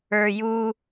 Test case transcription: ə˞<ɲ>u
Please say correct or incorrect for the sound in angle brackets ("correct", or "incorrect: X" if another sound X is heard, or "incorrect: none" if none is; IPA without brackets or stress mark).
incorrect: j